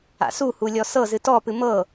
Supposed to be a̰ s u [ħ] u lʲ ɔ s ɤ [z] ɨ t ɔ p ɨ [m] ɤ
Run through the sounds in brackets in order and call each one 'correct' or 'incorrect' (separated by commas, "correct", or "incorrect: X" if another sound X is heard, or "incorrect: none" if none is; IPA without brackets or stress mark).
incorrect: h, correct, correct